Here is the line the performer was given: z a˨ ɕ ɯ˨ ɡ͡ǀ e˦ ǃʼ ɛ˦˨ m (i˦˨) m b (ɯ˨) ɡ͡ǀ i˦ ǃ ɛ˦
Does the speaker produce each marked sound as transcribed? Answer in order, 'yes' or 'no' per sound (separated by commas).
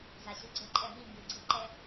yes, yes